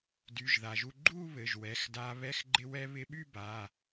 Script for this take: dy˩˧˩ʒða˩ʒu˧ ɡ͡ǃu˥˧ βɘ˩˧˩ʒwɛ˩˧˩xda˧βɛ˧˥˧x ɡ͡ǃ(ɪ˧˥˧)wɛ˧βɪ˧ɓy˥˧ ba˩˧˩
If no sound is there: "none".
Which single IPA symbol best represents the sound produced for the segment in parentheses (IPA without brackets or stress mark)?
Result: ɪ˧